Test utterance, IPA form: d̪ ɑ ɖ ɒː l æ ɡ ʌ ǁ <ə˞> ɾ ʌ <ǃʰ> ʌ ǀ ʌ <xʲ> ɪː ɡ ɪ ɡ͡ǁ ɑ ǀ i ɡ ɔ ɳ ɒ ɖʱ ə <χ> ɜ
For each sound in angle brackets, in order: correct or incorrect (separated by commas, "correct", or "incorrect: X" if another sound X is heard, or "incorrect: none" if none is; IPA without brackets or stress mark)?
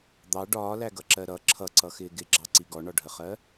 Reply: incorrect: ɜ, incorrect: ǁʰ, incorrect: x, correct